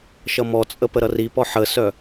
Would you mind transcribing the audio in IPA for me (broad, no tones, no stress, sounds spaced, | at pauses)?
ʃ ʌ m ɔ t͡sʼ ə p ə ɾ ʌ r i p ɔ ħ ə s œ